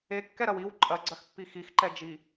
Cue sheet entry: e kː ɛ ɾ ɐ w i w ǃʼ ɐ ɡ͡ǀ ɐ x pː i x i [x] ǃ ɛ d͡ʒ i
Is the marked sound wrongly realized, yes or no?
no